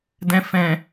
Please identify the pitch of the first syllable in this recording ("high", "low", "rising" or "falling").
low